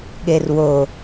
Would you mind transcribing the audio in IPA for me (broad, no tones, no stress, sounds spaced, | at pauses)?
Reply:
ɠ e r w o